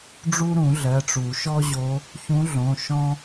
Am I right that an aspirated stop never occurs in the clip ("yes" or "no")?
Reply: yes